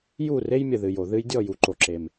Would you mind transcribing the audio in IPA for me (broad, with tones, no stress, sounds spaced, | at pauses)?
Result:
j u˦˨ r e˦ j mʲ ə˨ ð ɨ˨ j o˨ ð ɨ˧ j dʲ ɔ˦˨ j u˨ ǃ o˨ ǁ e˨ m